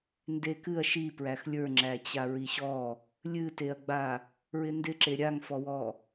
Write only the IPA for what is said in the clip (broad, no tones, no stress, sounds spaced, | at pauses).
n d e k ɨ ɐ̯ ʃ i p ɹ æ x lʲ ə˞ ŋ͡ǁ æ t͡ɕ a ɹ i ɕ ɔ | lʲ ɨ t e ɐ̯ ɡ͡b a | ɹ ɪ n d ɪ ǁ e ɾʲ a ŋ f ɔ w ɔ